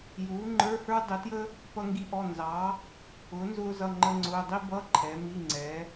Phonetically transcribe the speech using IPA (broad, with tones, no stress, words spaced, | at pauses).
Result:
juː˨˥ŋ͡ǃə˞˧˥˧hə˞˥ dˤɪ˨˥tjə˥ | pʌ˥ŋɡi˥ʔɔ˧˥˧ nzɑ˨˥ | ʊː˨˥ nzʊː˥zʌ˧˥˧ ŋ͡ǃə˥ŋ͡ǀʊː˧˥˧ dˤi˥bʌ˧˥˧ ǃʰɛ˨˥mi˧˥˧ŋ͡ǀɛ˨˥